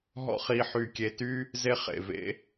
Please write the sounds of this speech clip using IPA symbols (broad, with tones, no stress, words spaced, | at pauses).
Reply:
ɦɔ̰˥χi˧ ħy˧˩kʲe˧ty˥ | ze˥χḛ˧˩vḛ˥